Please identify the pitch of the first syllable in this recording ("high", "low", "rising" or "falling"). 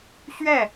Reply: falling